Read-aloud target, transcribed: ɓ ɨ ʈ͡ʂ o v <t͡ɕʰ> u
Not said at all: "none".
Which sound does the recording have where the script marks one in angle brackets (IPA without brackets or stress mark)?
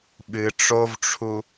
ʈ͡ʂʰ